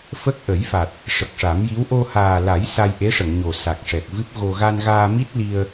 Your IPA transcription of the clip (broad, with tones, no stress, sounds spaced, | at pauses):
f ə˦˥ k̚ ʔ ə˨˩˦ j f a˨˩ t̚ | ʂ ə˨˩ k̚ ʂ a˨˩˦ m j i˧˥ w ʔ o˧ h aː˨˩ l a˨˩˦ j s a˧ j ʔ e˧˥ ʂ ə˨˩˨ ŋ ɲ o˨˩ s a˨˩ k̚ ʂ ɛ˨˩ k̚ v ɨ˦˥ p̚ ɣ o˧ ɣ a˧ n ɣ aː˧ m i˦˥ t̚ l i˧ ə̯